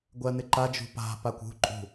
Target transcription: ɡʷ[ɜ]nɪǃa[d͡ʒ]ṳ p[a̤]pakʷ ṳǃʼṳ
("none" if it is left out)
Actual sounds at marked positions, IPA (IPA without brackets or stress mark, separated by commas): ɜ, d͡ʒ, a̤